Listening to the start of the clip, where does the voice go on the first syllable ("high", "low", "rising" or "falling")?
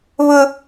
high